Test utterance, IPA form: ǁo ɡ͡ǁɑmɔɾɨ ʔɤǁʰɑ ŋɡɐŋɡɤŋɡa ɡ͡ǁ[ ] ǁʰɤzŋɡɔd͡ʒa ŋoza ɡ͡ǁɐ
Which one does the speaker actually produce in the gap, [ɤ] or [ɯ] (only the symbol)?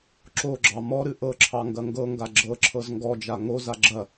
ɤ